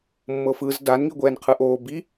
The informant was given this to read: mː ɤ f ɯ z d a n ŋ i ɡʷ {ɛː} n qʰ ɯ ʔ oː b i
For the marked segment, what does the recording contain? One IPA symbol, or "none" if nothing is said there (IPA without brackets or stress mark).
ɛː